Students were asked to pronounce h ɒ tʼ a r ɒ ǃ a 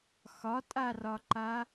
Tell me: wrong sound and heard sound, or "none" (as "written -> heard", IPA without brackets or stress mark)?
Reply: h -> x